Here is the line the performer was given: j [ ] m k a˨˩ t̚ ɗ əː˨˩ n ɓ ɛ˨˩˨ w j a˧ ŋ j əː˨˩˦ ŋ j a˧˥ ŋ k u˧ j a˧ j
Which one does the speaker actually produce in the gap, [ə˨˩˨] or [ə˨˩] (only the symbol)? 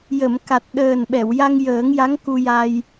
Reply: ə˨˩˨